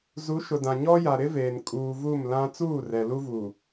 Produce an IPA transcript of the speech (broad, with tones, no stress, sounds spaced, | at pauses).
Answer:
z u˨˦ ʃ ʊ˨ d ã˨ ɲ ɔ˦ j a˨ ɾ ɪ˦ v eː˨ n kʼ uː˨ v u˦˨ m l ã˦ t͡s uː˦˨ r ɛ˨ l u˦ v uː˨